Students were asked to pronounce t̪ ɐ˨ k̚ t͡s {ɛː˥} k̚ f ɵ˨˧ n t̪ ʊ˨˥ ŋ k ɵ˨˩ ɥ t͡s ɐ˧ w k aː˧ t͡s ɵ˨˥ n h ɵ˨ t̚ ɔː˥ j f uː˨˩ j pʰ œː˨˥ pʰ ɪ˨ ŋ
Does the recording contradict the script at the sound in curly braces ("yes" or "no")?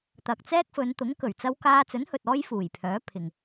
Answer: no